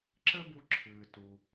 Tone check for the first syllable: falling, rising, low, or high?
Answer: high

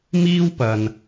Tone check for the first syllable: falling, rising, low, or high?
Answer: high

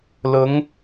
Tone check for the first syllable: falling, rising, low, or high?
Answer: rising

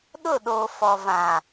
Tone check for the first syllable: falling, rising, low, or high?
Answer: falling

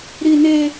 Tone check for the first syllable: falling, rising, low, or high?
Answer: high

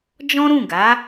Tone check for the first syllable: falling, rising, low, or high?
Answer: high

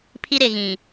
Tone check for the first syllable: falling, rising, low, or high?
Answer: high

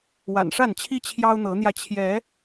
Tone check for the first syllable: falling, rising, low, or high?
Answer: low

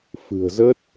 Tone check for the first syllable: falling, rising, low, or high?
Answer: low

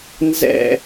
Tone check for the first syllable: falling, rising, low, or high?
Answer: falling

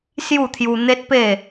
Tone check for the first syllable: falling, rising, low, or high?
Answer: falling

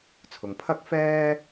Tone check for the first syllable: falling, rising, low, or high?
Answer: low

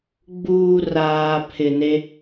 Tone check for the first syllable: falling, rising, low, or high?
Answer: low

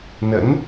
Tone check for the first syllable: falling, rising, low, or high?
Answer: rising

